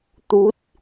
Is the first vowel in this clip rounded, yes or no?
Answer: yes